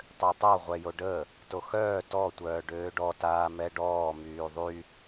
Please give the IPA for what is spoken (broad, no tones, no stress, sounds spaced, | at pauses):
tˤ ø tˤ o ʁʷ ɛ j o ɖ ə | t o x œː t ɔ tʷ œː ɖ øː ɖ ɔ t aː m ɛ ɖ ɔː m yː ðˤ y